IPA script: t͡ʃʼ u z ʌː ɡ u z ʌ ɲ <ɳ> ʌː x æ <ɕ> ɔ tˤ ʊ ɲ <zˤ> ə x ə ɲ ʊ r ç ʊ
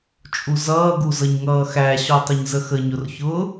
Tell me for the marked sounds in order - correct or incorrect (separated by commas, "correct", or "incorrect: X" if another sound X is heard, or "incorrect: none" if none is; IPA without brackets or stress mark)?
incorrect: ŋ, correct, incorrect: z